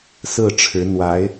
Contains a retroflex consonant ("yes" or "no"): yes